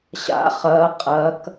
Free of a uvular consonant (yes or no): no